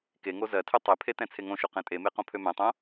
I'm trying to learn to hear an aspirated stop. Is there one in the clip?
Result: yes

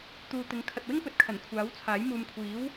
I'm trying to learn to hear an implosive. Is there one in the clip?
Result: no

